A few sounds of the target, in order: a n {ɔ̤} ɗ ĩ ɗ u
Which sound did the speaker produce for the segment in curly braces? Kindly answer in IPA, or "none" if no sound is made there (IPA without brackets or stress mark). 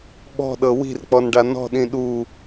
ɔ̤